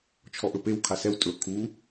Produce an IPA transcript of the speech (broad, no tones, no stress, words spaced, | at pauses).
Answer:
t͡ʃʰɔʔɵpew kʰasɛw tʼɵ kʰu